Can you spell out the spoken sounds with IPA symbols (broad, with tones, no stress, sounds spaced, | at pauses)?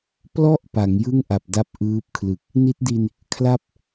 p l ɔ˥˩ ʔ p a˩˦ ŋ j ɯ˥˩ ŋ ʔ a˨˩ p̚ d a˦˥ p̚ ʔ ɯː˦˥ p̚ kʰ l ɯ˨˩ k̚ | n i˦˥ t̚ d i˧ n | kʰ l a˥˩ p̚